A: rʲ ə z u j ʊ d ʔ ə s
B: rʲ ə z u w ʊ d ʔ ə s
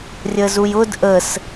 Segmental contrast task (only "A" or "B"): A